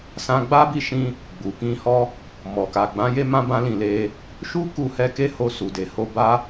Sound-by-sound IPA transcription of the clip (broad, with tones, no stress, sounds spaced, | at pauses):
s ã˧ ɡ͡b a˦ b i˦ ʃ ĩ˦ | ɡ͡b u˨ k ĩ˧ h ɔ˦ | m ɔ˨ k a˨ ɡ͡b ã˨˦ j e˦ m ã˦ b ã˦ l ĩ˦˨ l e˧ | ʃ u˦ k u˧ h ɛ˧ k e˦ h o˧ s u˨ d e˨ h o˧ b a˦